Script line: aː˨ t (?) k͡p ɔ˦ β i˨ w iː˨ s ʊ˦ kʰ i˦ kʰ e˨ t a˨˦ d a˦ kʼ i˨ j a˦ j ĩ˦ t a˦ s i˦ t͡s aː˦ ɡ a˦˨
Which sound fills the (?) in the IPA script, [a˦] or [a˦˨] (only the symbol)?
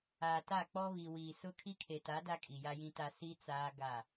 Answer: a˦˨